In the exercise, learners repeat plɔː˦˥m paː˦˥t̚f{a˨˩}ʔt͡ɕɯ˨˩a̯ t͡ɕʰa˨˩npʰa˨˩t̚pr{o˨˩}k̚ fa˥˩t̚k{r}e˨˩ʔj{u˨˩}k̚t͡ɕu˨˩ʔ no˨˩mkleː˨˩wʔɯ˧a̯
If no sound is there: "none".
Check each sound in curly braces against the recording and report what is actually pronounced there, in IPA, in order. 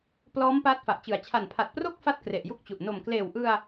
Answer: a˨˩, o˥˩, r, u˥˩

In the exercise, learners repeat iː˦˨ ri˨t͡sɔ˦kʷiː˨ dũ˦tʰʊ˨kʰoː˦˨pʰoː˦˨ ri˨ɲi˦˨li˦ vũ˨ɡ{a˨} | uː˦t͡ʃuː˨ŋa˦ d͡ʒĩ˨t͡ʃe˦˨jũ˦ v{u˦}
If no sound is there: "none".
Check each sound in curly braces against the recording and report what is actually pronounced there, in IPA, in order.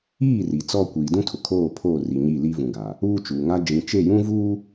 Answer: a˨, uː˦

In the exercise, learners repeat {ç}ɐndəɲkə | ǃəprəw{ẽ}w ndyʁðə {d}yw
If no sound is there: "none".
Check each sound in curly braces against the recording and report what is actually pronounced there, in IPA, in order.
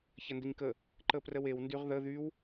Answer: ç, e, ð

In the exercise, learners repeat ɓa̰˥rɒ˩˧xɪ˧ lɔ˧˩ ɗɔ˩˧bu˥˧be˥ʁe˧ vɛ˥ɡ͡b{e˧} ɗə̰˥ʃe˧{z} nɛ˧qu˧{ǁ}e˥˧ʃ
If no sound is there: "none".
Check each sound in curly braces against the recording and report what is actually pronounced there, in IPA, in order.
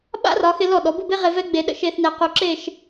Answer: e˧, θ, ǁ

